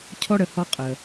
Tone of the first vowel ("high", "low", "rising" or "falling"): high